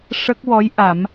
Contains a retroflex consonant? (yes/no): yes